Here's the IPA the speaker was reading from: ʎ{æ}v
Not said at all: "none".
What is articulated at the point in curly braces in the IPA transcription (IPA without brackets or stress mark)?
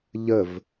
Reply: ə